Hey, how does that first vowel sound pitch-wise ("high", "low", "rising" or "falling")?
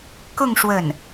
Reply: falling